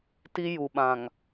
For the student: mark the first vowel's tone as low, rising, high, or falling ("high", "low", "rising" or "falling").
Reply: high